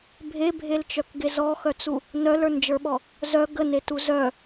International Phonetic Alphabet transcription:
bʱ e bʱ e l t͡ʃ œ k ɡ e z ɔ x œ t͡s u | n œ l ə˞ n d͡ʒ ə˞ ɓ ɔ | z œ ɡ ə n e t u z œ

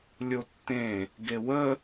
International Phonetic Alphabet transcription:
lʲ o tː ẽ | ɡ e w ə

